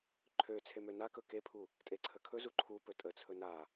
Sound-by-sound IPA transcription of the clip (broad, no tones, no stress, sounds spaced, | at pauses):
ǃʰ ø t͡sʰ e m ø n a k ɵ k e pʰ u | tʼ e ǀʰ ə kʰ ɵ z u ǃʰ u p ɵ tʼ ə t͡sʰ ɵ n a